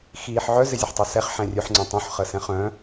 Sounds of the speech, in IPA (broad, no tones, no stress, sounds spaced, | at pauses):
x iː ħ ʕ œ z ɪ zʲ ə ħ tˤ ø s ɛ χ ħ ɛ̃ rʲ ø ħ ŋ͡ǀ œ̃ tˤ ũ ħ χ ə s ɛ̃ χ œ̃